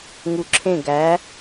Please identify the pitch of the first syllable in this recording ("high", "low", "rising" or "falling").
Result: low